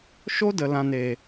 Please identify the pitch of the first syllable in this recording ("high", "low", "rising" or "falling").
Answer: high